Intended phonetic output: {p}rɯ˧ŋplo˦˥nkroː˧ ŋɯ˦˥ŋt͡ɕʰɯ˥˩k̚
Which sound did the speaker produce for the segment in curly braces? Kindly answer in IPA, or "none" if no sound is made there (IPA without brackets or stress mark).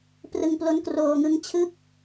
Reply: p